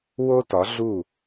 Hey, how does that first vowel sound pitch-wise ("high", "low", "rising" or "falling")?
high